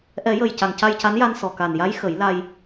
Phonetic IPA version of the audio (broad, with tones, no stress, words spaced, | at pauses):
ʔɛ˨˩˦jə˨˩j ca˨˩ŋca˧jca˧˥nja˧n sɔ˨˩ka˨˩nja˧˥j xə˨˩˦jla˧j